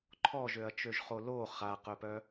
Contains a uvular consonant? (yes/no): yes